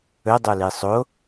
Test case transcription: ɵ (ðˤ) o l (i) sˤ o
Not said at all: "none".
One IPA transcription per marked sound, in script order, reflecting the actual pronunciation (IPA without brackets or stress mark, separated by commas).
dˤ, i